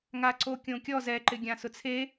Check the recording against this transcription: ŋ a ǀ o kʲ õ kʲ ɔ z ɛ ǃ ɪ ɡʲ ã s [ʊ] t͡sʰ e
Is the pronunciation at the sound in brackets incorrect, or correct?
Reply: correct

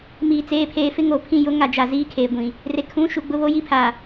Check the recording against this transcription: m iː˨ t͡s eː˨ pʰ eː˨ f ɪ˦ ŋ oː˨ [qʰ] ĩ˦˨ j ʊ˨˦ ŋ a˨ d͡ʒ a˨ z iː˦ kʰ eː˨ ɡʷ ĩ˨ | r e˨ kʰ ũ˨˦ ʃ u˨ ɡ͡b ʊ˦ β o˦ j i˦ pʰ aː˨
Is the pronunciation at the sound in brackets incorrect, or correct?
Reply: incorrect: pʰ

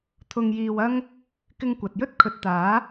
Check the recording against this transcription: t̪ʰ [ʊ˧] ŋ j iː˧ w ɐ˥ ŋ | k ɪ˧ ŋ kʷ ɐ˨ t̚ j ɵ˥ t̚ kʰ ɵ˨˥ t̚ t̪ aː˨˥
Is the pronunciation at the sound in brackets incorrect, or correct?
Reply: correct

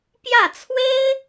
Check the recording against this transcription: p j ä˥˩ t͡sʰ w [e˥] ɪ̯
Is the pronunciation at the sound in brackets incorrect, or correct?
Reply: correct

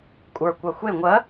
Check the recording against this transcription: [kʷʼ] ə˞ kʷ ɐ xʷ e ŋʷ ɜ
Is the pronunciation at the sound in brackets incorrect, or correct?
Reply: correct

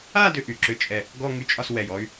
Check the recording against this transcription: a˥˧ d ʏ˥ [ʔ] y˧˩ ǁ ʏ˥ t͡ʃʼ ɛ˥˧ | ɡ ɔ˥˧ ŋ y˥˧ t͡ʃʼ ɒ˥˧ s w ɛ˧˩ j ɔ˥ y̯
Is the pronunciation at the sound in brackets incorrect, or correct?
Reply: correct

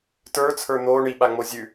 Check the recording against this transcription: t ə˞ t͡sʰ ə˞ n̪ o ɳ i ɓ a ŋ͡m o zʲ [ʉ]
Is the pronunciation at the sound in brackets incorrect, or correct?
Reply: correct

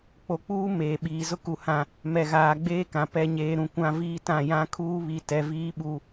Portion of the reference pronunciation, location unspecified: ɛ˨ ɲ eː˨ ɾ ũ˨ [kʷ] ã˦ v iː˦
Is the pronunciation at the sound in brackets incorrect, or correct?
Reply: correct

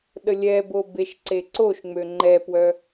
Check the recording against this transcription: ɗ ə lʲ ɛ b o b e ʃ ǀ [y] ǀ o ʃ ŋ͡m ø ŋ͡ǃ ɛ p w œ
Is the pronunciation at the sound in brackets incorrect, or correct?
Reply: incorrect: e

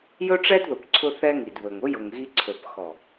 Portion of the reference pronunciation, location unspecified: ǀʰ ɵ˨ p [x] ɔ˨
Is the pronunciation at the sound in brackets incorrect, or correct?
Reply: correct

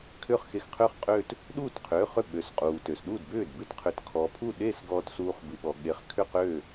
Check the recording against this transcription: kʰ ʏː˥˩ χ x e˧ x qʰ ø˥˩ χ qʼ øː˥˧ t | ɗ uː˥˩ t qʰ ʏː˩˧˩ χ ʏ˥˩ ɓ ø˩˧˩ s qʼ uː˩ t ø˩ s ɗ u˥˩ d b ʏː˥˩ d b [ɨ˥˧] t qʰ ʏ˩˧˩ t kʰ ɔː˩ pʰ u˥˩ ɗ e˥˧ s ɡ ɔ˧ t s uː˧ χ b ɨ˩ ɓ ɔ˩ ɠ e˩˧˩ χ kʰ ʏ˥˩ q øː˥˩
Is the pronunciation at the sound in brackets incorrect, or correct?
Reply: correct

